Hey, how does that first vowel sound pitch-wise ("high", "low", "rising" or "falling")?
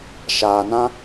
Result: low